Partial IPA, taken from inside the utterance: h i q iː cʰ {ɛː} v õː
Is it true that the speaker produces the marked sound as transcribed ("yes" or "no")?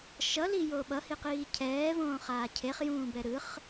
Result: yes